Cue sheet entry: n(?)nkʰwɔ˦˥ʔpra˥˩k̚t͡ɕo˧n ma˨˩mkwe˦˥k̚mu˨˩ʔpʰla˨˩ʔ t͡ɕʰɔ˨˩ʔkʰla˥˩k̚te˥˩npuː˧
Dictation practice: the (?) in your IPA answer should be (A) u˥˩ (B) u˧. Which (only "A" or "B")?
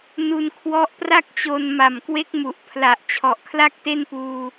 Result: B